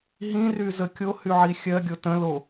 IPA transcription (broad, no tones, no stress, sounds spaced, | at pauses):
ɦ ĩ r y z ə kʲ o h y ʕ i xʲ ɜ ɡʲ o t ə̃ l o